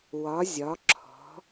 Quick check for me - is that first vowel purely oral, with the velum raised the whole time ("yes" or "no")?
yes